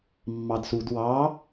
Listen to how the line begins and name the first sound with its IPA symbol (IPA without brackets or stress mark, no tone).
mː